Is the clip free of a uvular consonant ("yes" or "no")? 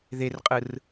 no